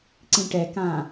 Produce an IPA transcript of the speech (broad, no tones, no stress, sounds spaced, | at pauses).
ǀ ĩ ʈ ɛ k ã